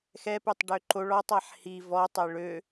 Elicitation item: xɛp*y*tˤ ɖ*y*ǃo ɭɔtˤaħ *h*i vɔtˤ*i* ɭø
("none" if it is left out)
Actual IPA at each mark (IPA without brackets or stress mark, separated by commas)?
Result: y, ø, h, e